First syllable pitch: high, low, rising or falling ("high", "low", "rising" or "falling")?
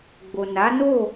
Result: low